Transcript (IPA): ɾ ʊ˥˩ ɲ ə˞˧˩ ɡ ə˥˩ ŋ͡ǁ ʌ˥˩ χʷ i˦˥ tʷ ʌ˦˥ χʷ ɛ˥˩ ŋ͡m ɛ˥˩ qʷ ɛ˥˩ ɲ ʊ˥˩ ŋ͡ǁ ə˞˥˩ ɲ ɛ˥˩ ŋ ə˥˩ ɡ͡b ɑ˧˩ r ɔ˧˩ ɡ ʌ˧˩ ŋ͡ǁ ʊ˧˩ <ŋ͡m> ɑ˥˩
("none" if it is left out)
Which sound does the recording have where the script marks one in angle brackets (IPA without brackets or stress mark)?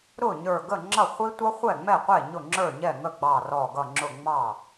ŋ͡m